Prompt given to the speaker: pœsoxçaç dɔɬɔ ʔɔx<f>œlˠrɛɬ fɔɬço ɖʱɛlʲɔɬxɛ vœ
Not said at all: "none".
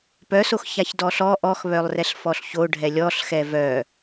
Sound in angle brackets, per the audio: β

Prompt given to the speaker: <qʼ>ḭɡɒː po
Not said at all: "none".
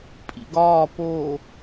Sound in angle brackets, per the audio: pʼ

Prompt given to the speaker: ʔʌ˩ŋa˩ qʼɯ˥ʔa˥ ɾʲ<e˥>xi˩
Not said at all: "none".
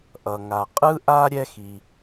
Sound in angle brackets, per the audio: ɛ˥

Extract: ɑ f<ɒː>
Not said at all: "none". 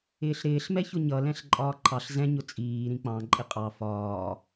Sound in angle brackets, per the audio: ɒː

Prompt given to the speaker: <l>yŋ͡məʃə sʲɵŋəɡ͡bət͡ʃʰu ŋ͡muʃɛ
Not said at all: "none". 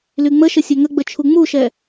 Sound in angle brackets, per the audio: l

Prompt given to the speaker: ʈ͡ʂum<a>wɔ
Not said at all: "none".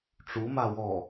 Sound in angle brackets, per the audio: a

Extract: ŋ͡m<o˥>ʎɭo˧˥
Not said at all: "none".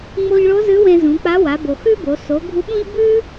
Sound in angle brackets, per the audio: o˧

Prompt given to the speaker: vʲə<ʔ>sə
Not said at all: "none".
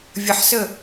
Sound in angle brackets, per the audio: ħ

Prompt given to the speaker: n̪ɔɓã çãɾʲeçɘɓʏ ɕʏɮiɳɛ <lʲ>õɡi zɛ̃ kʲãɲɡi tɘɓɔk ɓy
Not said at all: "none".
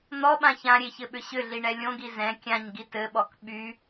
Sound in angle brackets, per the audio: lʲ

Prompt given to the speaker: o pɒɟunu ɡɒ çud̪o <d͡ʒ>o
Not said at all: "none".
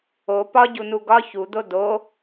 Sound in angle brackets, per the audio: d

